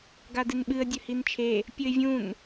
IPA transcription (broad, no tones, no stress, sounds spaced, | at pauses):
ɡ a d ɨ n ɓ ɨ ə̯ dʲ ɵ h i n t͡ʃʰ e | pʲ ɵ ɪ̯ vʲ ũ n